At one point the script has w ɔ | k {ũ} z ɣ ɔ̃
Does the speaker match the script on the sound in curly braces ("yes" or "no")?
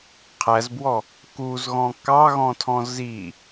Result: no